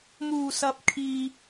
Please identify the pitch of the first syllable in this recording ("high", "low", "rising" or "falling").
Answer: low